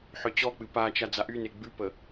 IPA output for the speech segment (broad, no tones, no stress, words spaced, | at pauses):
ħœt͡ɕɔk͡pɨ pat͡ʃa d͡zaʔyne ɡ͡bʉpə